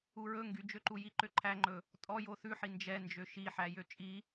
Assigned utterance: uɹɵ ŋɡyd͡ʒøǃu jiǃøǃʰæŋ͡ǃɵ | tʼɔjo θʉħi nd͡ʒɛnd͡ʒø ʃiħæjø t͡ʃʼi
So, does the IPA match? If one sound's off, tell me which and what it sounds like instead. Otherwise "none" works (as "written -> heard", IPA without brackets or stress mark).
none